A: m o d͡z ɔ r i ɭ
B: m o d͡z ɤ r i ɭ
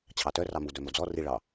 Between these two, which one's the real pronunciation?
A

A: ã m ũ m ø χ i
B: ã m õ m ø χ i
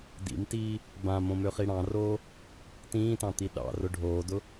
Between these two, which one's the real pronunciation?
B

